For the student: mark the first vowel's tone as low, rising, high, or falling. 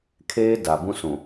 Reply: high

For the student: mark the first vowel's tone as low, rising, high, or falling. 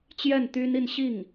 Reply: falling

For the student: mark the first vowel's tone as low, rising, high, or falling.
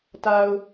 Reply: low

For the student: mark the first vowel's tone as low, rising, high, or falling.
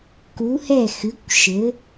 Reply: rising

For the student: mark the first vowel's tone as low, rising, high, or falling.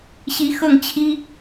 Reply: rising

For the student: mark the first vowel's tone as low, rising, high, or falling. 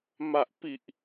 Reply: low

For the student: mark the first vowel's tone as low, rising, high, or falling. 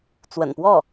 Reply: low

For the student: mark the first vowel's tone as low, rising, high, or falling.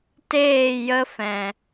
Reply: falling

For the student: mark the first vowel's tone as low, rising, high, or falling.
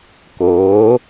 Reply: rising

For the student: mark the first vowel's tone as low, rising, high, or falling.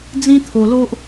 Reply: high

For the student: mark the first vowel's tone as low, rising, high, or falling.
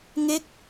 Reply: falling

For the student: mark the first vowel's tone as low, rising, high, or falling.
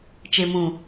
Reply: low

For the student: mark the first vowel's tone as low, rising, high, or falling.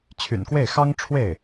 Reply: low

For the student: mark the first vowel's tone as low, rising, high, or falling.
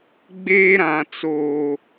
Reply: high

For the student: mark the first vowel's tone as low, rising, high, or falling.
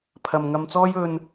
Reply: low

